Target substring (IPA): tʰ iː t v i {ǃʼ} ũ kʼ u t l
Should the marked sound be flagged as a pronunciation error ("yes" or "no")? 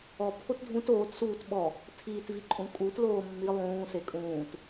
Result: no